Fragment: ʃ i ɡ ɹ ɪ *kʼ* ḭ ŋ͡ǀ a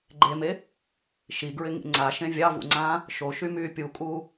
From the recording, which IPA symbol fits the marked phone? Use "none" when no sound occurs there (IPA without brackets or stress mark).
ŋ